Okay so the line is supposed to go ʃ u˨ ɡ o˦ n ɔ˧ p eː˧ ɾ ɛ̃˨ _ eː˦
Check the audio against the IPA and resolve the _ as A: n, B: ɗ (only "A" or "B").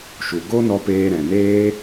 A